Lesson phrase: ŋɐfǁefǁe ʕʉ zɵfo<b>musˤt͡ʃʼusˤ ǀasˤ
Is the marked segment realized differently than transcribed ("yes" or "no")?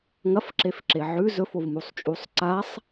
yes